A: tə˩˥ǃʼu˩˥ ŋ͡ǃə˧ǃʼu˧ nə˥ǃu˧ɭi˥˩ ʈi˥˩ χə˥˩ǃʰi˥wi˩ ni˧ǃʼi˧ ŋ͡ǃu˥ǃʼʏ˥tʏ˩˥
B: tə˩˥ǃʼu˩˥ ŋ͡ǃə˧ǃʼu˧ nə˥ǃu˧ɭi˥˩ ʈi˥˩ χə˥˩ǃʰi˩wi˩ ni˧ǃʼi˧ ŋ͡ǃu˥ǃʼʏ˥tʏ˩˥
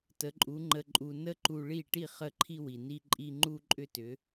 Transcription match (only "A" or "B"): A